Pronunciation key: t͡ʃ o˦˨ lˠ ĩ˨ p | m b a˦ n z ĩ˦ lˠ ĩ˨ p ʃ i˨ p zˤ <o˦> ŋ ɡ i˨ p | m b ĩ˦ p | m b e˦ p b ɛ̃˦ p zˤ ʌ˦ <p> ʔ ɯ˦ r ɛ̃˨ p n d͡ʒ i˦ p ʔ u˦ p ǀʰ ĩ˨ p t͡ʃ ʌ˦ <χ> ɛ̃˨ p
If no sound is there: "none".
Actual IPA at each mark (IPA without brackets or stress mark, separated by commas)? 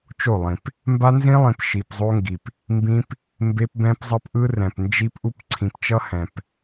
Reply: o˦, p, h